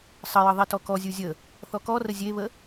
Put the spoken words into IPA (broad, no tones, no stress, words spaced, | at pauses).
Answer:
sˤəjə ðˤitɔkɔzʲu zʲə | θɔkɔrə zʲeβə